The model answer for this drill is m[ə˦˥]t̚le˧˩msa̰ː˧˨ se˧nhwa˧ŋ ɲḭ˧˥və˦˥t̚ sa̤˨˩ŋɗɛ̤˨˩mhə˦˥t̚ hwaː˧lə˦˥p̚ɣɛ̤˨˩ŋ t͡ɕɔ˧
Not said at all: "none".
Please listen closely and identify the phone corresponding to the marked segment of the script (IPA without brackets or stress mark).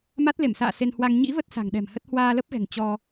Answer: a˦˥